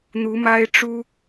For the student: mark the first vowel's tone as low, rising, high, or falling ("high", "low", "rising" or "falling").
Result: rising